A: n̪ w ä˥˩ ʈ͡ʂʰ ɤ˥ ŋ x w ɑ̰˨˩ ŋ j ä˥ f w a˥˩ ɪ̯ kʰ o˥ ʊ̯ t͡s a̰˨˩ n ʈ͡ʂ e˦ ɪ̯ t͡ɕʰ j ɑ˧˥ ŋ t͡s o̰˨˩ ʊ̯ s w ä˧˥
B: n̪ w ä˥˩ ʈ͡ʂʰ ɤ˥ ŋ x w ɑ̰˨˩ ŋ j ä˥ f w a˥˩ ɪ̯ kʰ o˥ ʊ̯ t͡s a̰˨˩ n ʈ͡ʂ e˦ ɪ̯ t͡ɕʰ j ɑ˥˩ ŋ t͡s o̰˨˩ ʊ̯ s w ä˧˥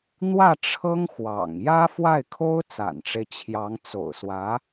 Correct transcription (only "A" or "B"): A